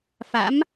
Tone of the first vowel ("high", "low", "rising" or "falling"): rising